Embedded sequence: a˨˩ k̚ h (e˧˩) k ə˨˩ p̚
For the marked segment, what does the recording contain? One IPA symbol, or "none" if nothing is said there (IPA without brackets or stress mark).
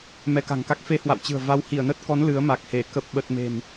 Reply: e˧˩